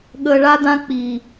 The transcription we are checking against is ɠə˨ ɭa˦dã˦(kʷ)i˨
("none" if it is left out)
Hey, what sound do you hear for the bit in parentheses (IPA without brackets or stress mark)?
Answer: k͡p